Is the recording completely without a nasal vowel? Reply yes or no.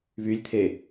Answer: yes